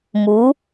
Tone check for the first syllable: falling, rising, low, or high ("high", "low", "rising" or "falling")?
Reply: rising